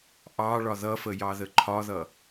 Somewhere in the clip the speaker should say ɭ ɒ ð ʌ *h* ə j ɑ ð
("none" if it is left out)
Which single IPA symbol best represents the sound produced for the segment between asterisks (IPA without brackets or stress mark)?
f